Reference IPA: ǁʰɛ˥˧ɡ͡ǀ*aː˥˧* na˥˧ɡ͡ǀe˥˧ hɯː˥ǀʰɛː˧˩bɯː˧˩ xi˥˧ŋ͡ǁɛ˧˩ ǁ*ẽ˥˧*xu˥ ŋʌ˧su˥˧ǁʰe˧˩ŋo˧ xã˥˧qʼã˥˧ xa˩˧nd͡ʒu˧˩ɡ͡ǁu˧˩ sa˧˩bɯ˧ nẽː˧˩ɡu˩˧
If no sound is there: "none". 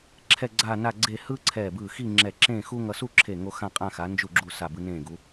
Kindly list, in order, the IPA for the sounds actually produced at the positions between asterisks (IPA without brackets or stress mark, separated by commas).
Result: aː˥˧, ẽː˥˧